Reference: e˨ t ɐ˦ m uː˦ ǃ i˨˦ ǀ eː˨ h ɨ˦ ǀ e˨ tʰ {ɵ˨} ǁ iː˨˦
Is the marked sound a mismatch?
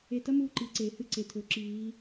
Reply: no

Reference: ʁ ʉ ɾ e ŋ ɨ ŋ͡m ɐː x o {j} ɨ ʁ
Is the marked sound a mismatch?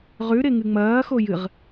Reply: no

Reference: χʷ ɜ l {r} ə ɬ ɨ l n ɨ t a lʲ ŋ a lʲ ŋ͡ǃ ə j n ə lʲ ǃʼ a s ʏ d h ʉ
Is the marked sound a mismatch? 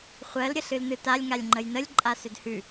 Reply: yes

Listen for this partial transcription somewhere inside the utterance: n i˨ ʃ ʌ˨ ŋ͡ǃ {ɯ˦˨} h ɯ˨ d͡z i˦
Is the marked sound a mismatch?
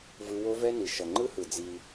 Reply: yes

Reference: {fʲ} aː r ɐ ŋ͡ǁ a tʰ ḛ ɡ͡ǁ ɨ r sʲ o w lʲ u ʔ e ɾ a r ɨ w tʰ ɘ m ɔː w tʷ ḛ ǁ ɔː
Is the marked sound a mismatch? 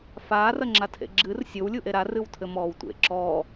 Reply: yes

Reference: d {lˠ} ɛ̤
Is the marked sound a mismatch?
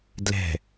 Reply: yes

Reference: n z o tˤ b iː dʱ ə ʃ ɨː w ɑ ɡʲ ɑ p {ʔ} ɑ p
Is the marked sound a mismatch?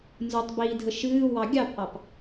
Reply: no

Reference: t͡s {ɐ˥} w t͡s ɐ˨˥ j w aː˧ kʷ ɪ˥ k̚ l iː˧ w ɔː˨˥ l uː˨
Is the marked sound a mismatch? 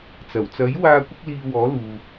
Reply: yes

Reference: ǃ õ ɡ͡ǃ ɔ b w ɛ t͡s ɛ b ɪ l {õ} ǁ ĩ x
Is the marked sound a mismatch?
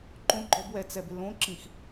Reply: no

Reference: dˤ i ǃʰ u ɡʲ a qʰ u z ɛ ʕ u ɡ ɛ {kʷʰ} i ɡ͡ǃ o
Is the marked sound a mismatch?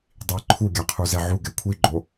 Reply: no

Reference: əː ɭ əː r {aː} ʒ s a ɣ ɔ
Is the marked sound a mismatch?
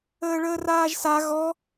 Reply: no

